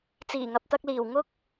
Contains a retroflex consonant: no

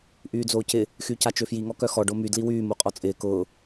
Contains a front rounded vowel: yes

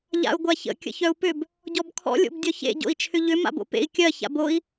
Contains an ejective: no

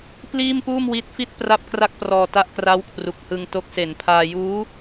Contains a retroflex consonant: no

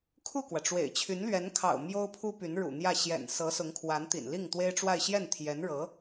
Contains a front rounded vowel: yes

